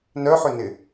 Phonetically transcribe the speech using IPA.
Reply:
n œ ħ ʏ n ɪ

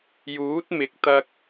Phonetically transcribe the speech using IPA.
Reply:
j uː˨˥ t̚ m ɪ˨˥ k̚ t̪ ɐ˧ k̚

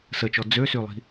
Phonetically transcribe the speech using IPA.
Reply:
s ə t͡ʃ ɔ d͡z ø s y lˠ i̤

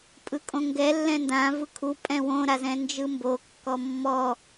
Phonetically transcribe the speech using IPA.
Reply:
pʼ ɯ kʼ õ ŋ ɡ ɛ lː ɛ̃ n d ã v ɯ kʰ u pʼ ɛ̃ w õ ɾ a z ɛ̃ n d͡ʒ ɯ m b o kː ɔ mː ɔ

